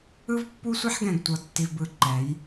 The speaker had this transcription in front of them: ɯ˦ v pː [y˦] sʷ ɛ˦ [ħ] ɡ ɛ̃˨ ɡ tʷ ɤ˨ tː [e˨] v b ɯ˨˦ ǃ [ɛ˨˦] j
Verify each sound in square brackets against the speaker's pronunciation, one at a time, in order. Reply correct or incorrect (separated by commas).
incorrect, correct, incorrect, correct